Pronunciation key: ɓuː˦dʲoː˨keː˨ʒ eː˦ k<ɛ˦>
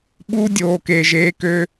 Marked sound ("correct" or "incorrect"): incorrect